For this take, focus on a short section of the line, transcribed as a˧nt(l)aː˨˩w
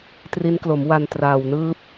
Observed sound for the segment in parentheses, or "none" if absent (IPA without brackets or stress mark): r